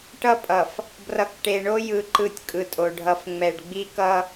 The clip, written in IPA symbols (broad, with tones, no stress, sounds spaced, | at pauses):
ʈ ʌ˦ pʼ ʌ˨ f | b r ʌ˨ k ʈ e˨ ɳ o˦ j ɯ˦˨ ǃ ɯ˦ tʲ kʼ ɯ˨ tʼ o˨ ɖʱ ʌ˨ f ŋ͡m ɛ˨ ɖ ɡ͡b i˦ k ʌ˦